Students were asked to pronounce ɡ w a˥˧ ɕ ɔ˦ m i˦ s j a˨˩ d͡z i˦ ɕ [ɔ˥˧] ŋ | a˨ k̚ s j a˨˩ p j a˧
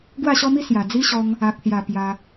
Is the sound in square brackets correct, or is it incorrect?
incorrect